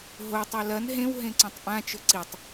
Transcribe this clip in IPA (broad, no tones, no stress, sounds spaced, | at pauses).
ɦ o tˤ o l ɐ n ɦ ẽ w ɦ ẽ ǀ õ tˤ ʔ ã t͡ʃ ɵ ǀ i tˤ